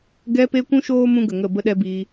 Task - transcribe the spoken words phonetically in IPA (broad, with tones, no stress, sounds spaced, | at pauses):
ɡ ɛ˧ p e˧ kʷ ũ˦ ʃ oː˦ m ũ˦ ɡ ə˨ ŋ ə˦˨ b ə˦ ɗ ɛ˧ b iː˧